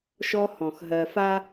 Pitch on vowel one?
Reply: high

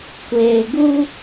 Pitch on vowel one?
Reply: low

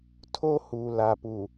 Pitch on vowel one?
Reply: high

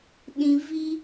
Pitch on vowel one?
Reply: low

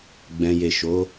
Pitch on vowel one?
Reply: low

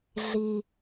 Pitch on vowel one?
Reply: low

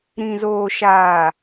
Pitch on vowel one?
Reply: low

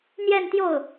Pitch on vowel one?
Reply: falling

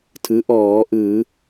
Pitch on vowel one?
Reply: rising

